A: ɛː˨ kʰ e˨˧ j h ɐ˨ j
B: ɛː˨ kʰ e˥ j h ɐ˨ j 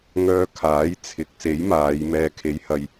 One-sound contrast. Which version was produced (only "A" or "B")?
A